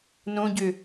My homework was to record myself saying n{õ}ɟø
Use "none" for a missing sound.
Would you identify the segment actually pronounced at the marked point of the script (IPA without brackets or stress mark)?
õ